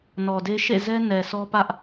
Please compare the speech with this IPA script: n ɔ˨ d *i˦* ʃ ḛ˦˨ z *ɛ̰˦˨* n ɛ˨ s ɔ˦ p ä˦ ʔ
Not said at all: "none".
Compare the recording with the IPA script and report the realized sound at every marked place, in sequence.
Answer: e˦, ɛ˦

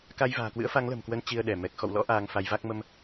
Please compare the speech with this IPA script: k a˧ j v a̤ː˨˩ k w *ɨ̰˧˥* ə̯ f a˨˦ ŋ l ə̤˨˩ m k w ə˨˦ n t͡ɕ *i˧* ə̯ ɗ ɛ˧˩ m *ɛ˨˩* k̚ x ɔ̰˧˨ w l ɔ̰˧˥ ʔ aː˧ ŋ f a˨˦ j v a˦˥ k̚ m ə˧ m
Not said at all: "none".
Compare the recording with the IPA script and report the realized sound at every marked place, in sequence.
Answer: ɨ̰˧˥, i˧, ɛ˨˩

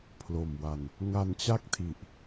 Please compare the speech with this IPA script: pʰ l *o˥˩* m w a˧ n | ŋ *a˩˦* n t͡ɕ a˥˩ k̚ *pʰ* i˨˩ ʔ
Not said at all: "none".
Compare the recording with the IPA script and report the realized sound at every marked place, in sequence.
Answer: o˨˩, a˧, tʰ

